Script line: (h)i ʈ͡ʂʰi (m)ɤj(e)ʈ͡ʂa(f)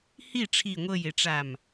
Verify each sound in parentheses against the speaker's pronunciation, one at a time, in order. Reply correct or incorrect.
correct, incorrect, correct, incorrect

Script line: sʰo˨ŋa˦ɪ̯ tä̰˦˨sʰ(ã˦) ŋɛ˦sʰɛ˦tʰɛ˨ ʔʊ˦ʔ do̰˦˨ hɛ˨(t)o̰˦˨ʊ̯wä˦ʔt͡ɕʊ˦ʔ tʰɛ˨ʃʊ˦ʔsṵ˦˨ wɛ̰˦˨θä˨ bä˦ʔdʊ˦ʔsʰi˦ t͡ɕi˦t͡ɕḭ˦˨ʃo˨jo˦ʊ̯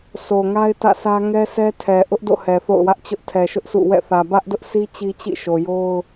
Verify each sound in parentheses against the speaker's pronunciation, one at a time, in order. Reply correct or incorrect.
incorrect, incorrect

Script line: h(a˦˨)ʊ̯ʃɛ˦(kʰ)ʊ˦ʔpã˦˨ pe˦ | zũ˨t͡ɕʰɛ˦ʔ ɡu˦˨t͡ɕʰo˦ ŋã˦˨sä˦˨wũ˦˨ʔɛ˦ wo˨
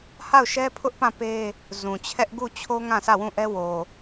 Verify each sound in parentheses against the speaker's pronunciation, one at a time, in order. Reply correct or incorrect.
correct, incorrect

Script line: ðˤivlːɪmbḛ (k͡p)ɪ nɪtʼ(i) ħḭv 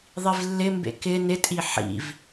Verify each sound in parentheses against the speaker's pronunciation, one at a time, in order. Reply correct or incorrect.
incorrect, correct

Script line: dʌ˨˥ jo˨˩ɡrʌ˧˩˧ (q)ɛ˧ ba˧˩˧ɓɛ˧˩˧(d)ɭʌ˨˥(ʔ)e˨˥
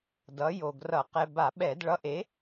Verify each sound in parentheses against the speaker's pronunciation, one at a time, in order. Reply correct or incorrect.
correct, correct, correct

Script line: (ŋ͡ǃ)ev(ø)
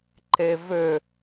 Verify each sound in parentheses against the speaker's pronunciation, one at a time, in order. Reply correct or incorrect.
incorrect, correct

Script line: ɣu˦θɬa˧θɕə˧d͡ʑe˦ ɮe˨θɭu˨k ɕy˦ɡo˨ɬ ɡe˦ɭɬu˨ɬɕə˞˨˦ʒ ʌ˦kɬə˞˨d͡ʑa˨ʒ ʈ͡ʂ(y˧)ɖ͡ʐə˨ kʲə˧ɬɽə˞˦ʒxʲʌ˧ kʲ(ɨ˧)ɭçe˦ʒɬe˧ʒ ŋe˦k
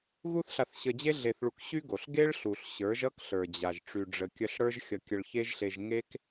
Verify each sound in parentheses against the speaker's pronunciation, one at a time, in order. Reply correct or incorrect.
incorrect, incorrect

